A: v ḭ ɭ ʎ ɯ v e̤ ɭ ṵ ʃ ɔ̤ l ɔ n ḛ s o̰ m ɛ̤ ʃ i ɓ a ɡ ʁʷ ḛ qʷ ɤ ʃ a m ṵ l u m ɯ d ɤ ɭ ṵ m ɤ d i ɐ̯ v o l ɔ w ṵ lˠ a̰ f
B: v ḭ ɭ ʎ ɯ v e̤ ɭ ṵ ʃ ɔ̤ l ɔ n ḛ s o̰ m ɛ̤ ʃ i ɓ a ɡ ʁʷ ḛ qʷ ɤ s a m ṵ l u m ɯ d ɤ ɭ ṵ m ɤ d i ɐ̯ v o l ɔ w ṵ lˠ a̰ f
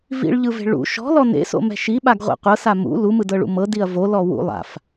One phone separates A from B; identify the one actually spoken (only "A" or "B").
B